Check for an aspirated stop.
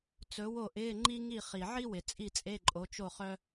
absent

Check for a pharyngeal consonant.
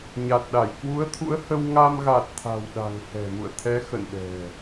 absent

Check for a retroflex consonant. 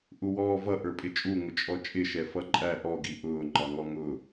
absent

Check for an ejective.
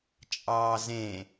present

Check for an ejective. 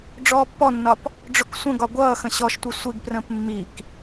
absent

